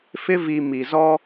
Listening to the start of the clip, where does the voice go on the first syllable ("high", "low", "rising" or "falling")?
high